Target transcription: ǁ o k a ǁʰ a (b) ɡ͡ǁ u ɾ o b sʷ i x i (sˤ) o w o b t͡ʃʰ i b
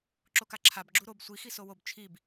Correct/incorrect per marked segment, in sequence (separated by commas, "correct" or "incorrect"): correct, incorrect